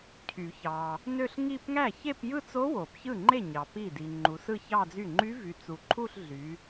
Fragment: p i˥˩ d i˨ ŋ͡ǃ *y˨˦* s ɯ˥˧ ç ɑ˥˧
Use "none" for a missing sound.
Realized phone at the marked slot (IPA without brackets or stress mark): u˨˦